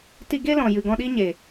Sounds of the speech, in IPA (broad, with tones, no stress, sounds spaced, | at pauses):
t i˧ ɡ e˦ l ɔ̃˨ j ɨ˨ ɡ ɔ̃˧ ɗ i˦ ɲ e˨